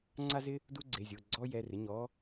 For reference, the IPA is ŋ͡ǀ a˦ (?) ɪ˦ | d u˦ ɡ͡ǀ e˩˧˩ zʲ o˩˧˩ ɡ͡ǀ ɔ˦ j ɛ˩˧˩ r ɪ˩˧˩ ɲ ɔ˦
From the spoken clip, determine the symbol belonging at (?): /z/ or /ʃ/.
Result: z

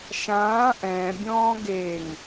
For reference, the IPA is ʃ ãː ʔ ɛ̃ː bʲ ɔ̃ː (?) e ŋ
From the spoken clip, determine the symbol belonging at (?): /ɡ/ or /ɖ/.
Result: ɡ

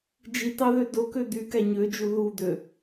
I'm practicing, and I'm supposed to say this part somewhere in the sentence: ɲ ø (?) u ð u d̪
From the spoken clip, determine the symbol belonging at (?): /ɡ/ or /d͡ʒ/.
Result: d͡ʒ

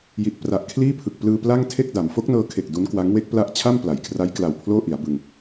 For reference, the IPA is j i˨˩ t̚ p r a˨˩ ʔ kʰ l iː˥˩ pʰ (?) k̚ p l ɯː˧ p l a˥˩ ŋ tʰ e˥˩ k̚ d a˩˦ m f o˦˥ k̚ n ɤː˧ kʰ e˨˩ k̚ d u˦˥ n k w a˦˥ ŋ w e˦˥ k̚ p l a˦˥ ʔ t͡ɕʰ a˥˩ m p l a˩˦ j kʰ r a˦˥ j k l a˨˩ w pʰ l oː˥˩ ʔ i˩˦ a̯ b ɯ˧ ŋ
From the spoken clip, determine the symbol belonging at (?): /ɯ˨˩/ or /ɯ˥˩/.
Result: ɯ˨˩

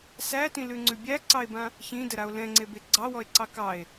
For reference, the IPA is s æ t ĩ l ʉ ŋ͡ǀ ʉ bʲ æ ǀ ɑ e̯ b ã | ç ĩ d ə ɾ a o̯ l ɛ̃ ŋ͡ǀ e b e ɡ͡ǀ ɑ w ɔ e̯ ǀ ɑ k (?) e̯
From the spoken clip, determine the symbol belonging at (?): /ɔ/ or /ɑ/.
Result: ɑ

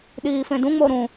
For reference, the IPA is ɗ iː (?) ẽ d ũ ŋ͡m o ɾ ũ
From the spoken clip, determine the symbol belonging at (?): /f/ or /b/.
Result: f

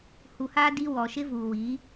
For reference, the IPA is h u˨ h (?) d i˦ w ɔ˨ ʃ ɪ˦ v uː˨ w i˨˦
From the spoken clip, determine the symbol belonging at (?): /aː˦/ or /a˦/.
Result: aː˦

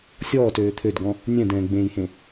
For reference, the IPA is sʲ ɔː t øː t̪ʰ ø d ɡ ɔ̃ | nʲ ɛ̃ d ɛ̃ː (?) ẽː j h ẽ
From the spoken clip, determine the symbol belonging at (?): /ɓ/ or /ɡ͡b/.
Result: ɡ͡b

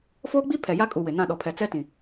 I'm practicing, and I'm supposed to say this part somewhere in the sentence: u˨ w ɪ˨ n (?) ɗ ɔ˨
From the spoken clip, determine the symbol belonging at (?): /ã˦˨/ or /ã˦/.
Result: ã˦˨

